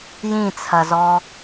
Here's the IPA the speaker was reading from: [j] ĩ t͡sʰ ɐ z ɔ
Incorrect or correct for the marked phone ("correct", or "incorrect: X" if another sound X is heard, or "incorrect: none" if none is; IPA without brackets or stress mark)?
correct